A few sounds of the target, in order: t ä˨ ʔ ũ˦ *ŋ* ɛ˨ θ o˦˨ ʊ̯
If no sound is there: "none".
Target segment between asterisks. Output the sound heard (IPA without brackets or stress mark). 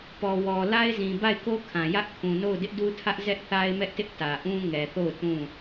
ŋ